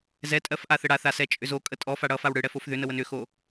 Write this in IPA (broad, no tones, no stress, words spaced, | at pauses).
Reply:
zɛtʼɜf ʔaθəɽaθa sɛt͡ʃʼʏzokʼə tʼɔ faɽʌfaw ɽɯɽɛfof ðʏnəwən ʏxo